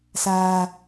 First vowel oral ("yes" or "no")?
yes